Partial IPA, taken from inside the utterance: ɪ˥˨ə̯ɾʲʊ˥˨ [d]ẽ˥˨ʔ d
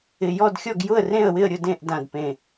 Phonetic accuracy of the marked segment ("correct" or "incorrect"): correct